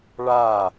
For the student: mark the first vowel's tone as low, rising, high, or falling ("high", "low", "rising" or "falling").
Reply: falling